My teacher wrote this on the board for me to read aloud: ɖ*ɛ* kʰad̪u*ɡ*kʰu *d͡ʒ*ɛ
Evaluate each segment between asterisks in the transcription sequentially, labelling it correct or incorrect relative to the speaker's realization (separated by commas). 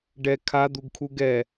correct, correct, incorrect